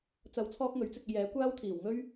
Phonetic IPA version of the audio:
t͡sɐ˧wt͡sʰɔː˥k̚ŋɵ˨˥ɥ t͡sɪ˧k̚e˧j ɛː˨˥kʷaː˥wt̪ʰiː˨˩w ŋɵ˥ɥ

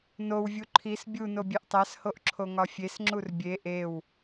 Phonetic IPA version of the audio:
nowvʲu ǃʰis bʲuno bʲeʔtˤæshoʔ ǁʰoŋɒfʲesŋ͡ǁur bʲe ʔew

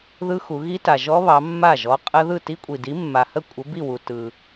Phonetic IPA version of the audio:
ðɯ˦˥xu˩˧ ɣi˦˥ta˩ ʒɔ˦˥βɑ˩˧ mːa˥˩ʒɔ˨˥ qʼə˦˥ ðɯ˥˩ti˦˥kʷʼi˩di˨˥ mːa˩hə˥˩ kʷʼə˨˥ bi˥˩wu˩ tɯ˩

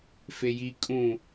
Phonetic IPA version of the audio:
feji kʼũ

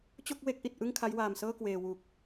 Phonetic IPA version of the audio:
t͡ɕo˥˩k̚we˦˥k̚ʔi˨˩t̚ ʔɯ˥˩ŋkʰa˦˥jwaː˨˩msɤː˥˩ kweː˨˩wu˨˩k̚

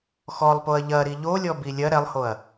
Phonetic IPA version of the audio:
xɔlˠpoɐ̯ ʎɐɾi ʎolʲɔbi lʲɐ ɾɛlˠhoɐ̯

